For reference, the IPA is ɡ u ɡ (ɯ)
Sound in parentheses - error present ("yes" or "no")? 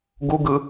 no